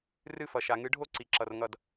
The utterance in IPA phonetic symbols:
rɨ˥˧fʌ˨ʃa˨ŋɨ˧˥ ɖʱo˥˧ǀi˨ǁʌ˨r ŋʌ˥˩d

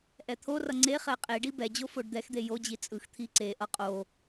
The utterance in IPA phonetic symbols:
ʔɛt̪ʰorʌ ŋ͡ǀe χɛqʼeɖi bɛd͡ʑo foɖd̪ɛxd̪e jod͡ʑi t͡sʼɯxt̪ʰi ǀeʔʌ qʼo

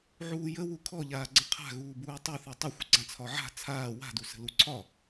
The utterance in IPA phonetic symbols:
ʕuːjə wukʰɔ ʎaːɡ͡ǀə̃qʰa̤ ɣuːbuːtˤuθi tˤəxʷə ɡ͡ǀãt͡sʰɒʕa̤ t͡sʰaː wa̤dusə̤ luǀʰɒ

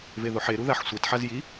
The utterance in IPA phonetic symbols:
veðoħe ɾuðaħsʷet ħazji

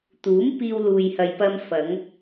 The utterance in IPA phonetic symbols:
t̪uː˨˥mpiː˧wluː˨j hɐ˨jpɐ˧mfɐ˨˧ŋ

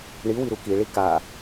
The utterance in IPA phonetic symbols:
ɳiwiɾu kiɭi ka

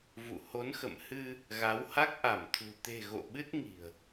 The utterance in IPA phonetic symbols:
vṵ˧˨ ho˨˦nxə̰˧˨m hɨ˧ | ɣa˨˦wha˦˥k̚ ʔa˧˩mt̪ʰṳ˨˩ t̪e̤˨˩ ɣo̰˧˨ɓɨ˦˥t̚ŋi̤˨˩ə̯

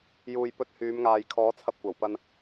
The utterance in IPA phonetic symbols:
juː˨jpɵ˧t̚hyː˨˧mŋaː˨j kʰɔː˨˥t͡sʰɐ˧p̚kʷɐ˨˩w pɐ˧n

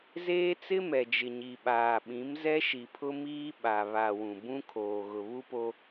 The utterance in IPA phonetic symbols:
zeː˦ t͡sɪ˦mɛ˨d͡ʒɪ˨ ɲi˨ɓaː˨ɓĩ˨˦m zɛ˦ʃi˨pʰʊ˦miː˦ ɓa˨βa˨wũ˨ bũ˦ kʰoː˨ɣʊ˨βu˦po˦

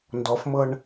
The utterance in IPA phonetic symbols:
ndɔfmɤɳ

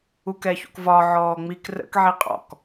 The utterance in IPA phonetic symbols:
ukɛçṵkvɒ ʕɔːŋ͡mik rə̰k ʕiqʼɔ̰k

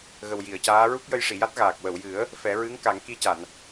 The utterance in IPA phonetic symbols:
ɣə˨˩wji˨˩˨ə̯caː˧˥ ɹu˦˥k̚jə˧jʂi˨˩˨ja˦˥t̚ ɣaː˨˩k̚ wə˨˩˨wjɨ˨˩˦ə̯ | fɛ˨˩˦ɹɨ˧˥ŋka˨˩˦ŋ ki˧ca˨˩˨n

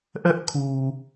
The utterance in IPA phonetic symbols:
ʔɛ˦ʔkʰu˨

